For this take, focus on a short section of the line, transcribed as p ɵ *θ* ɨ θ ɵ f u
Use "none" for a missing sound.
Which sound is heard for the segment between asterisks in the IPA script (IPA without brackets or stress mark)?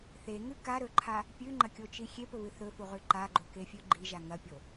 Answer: β